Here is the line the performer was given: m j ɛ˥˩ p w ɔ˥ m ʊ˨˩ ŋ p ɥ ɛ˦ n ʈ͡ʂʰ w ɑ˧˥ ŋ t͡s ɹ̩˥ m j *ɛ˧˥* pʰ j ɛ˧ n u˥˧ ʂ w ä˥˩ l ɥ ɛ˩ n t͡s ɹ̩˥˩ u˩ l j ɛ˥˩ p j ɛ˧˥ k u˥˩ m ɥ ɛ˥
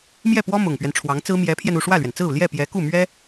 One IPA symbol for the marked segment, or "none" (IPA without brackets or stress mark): ɛ˧˥